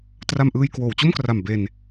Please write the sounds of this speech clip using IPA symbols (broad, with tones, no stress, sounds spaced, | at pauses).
t r a˧ m ʔ ɯː˧ j k w oː˩˦ w t͡ɕ o˥˩ m k r a˨˩ m b e˧ n